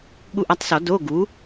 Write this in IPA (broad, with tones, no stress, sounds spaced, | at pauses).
ɠ u˦˨ ʔ a˦˥ tˤ s ɔ˨˩˦ d o˧˥˧ ɡ u˩˥